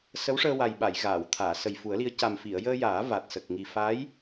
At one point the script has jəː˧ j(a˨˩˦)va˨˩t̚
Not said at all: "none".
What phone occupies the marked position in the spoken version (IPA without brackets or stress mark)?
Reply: aː˨˩˦